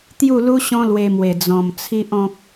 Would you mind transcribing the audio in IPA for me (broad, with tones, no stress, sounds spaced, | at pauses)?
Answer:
t̪ j u˥˧ l u˦ ɕ ɔ̃˦ l w e˧ m w e˨˩ d͡z ɔ̃˨˩ m t͡sʰ i˦ ʔ ɔ̃˦ k̚